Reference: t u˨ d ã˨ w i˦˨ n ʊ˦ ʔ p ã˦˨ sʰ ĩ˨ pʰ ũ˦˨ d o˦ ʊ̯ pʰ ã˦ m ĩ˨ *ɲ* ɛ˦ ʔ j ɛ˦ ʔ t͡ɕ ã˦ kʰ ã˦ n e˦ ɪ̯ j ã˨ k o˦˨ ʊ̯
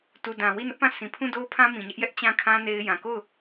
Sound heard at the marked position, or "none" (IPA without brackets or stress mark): ɲ